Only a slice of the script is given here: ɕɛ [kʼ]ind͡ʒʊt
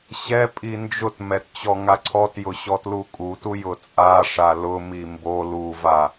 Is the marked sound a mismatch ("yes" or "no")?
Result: yes